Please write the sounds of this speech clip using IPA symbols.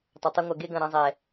tˤ ɛ˨ tˤ ɨ˧ ŋʷ ɐ˨ ɡ e˧ ɡ ɐ̃˨ ɾ ɐ̃˧ zˤ ɛ˨

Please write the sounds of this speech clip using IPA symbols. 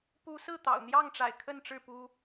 p u˨˦ s ɹ̩˥˨ t̪ ɑ̰˨˩ ʊ̯ n̪ j ɑ˥˨ ŋ ʈ͡ʂ a̰˨˩ ɪ̯ kʰ ə˥˨ n ʈ͡ʂ ɻ̩˥˨ p u˦

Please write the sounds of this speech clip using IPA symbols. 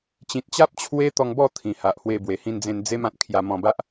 t͡ɕ ĩ˨ t̚ t͡ɕ a˦ p̚ t͡ɕʰ w e˦ t̪ ɔ˧ ŋ b ɔ˥˧ t̪ʰ ĩ˨˩ h a˨ ʔ h w e˧ b w e˨˩ h ĩ˧ n d͡z ẽ˧ n d͡z e˦ m ã˨ t̚ kʰ j a˧ m ɔ̃˧ b a˦ ʔ

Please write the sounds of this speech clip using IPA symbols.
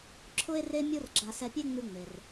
ǁʰ ʊ˧ e̯ r e˧ mʲ o˥ r ɡ͡ǁ a˧ s ɛ˧ pʲ e˥ ŋ͡m ʉ˧ ŋ͡m e˩ r

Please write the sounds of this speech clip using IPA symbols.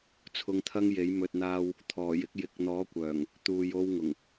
t͡sʰ ʊ˧ ŋ t̪ʰ ɐ˥ ŋ j e˨˥ j m ɵ˨ t̚ n̪ aː˧ w | t̪ʰ ɔː˨˩ j ɪ˧ k̚ j ɪ˨ k̚ n̪ ɔː˨˥ kʷ œː˨˩ ŋ | t̪ uː˨ j o˧ w ŋ ʊ˨˩ ŋ

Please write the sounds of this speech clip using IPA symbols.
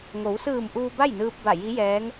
ŋ o˩˧ w s ɯː˧˩ m ʔ uː˧ b a˥˨ j n ɯː˧ p̚ b a˧˩ j i˧˥ j ɛː˧˥ ŋ

